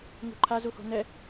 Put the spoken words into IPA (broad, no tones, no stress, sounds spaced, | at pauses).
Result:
ŋ ṳ ǃʰ a z u h o̤ n ɛ